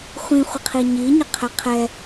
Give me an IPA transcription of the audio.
χʷ ĩ χʷ ə qʰ i ɲ i ɲ ə qʰ ɛ qʰ ɛ

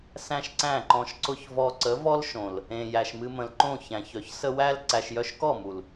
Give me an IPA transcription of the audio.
s æ̃˦ ʃ ǀ æ̃˦˨ ǃ ɔ̃˧ ʃ ǀ ʊ˦ ç v ɔ˧ ǀ ə˨˦ v ɔ˦ l ʃ õ˨ l | ẽ˨ j æ˨ ʃ m ɨ˧ m ə̃˨ l ǃ õ˦˨ ç æ̃˨ ç œ˨ ç s ə˧ w æ˦ l ǀ æ˧ ʃ j œ˦ ʃ k ɔ˦˨ m u˨ l

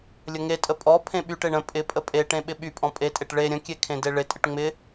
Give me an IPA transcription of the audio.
lʲ ə ŋ e tʼ ə pʼ ɔ pʰ ẽ ɓ y ʈ e ɳ ə̃ pʼ ɪ pʼ ə pʼ e ʈ ẽ ɓ ɪ ɓ y pʼ ɔ̃ pʼ e tʼ e ʈ ɭ e ɾʲ ə̃ kʲ e kʰ ẽ d e ɭ ɪ tʼ ɪ ʈ ŋ͡m ɪ

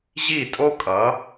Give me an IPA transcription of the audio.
ʑ i˦˨ tʼ o˦ kʼ ʌ˨˦

